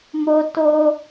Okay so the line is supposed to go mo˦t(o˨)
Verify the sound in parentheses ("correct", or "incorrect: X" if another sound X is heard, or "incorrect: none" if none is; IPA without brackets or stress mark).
incorrect: o˦